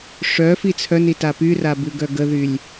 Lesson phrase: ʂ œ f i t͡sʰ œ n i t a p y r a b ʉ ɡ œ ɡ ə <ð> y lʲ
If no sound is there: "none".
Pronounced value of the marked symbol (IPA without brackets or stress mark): ð